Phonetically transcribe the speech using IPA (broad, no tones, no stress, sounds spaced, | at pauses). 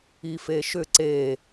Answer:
i f e ʃ ʏ ǀ e